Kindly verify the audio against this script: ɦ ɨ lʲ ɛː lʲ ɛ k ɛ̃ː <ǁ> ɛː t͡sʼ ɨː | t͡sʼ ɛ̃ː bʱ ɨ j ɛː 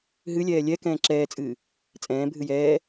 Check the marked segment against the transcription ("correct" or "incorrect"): correct